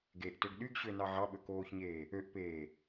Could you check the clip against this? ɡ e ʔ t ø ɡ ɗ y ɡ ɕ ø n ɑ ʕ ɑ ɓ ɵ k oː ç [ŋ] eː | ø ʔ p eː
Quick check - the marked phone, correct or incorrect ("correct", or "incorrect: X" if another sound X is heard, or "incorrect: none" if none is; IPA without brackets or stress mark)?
incorrect: ɲ